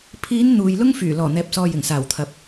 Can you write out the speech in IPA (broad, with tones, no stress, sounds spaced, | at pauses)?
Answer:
pʰ iː˨˧ n n̪ uː˨ j l ʊ˥ ŋ f yː˨˩ l ɔː˨˩ n̪ ɛː˨ p̚ s ɔː˨ j ɪ˨˩ ŋ s aː˨˩ w t̪ʰ ɐ˨ p̚